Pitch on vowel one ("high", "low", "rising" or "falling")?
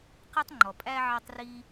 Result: high